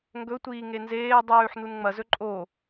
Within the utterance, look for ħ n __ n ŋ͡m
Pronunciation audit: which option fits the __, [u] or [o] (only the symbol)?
u